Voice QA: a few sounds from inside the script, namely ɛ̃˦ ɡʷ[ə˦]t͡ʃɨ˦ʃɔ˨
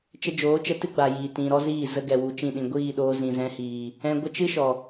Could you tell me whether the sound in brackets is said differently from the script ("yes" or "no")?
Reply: no